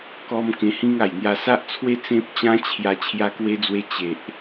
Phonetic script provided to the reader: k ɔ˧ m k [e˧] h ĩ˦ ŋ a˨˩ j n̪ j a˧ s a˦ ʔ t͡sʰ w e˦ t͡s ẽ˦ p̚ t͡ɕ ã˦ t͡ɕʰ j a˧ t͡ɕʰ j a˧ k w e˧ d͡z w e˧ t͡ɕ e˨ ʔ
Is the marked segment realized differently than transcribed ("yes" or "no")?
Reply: yes